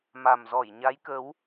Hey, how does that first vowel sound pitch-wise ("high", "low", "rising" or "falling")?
low